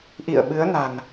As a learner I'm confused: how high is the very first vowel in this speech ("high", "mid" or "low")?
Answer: high